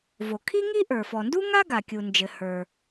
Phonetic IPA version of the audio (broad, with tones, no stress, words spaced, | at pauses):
vo˩kʰi˥ŋi˥ ʔə˞˩fɔ˩ndu˥ŋa˥ ɡa˩kʲu˩nd͡ʒɘ˩ hə˞˩